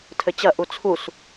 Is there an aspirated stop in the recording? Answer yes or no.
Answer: yes